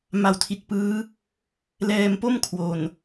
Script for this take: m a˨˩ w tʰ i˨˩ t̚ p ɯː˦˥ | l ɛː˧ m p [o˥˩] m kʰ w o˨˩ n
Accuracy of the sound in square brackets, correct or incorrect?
correct